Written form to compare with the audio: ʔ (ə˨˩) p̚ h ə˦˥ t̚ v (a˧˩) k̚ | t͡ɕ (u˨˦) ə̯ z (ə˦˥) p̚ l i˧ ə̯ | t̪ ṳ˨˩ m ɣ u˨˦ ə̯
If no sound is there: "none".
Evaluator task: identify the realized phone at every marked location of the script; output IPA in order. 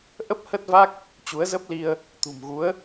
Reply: ə˦˥, a˦˥, u˨˦, ə˦˥

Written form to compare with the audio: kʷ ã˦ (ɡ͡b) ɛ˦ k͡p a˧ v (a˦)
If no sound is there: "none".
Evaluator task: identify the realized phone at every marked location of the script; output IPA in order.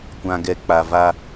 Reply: ɡ, a˦

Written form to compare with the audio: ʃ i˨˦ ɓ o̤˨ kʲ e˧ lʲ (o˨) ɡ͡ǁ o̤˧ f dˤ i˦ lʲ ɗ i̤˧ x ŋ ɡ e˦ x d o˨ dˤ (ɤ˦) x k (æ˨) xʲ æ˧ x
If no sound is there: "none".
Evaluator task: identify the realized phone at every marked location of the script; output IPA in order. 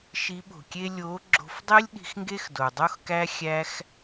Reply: o˨˦, o˦, æ˦

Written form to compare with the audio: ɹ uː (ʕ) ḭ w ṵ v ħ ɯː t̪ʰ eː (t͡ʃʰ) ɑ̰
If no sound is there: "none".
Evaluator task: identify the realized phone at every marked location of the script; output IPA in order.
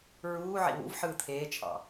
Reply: ʕ, t͡ʃʰ

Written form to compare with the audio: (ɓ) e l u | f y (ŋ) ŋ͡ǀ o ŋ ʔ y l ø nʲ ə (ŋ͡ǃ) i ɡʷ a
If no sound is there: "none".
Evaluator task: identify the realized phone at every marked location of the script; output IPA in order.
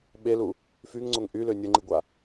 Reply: ɓ, ŋ, ŋ͡ǃ

